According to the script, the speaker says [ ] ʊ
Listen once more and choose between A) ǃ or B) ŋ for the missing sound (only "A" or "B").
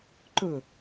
A